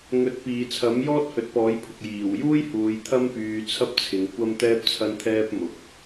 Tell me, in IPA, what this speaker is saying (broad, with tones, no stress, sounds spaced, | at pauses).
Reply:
ŋ ɵ˨˥ t̚ p iː˨˧ t͡sʰ ɐ˨˥ m j ɔː˥ t̚ h ɵ˨˥ t̚ p ɔː˨˥ j pʰ ʊ˨ k̚ j iː˨˩ w j uː˥ j h uː˨˧ j t̪ʰ ɐ˥ m p yː˧ t͡sʰ ɐ˥ p̚ t͡sʰ ɪ˨˧ ŋ kʷ ɐ˥ m t̪ ɛː˥ p̚ t͡sʰ ɐ˥ n t̪ʰ ɛː˥ p̚ m ʊ˨˥ k̚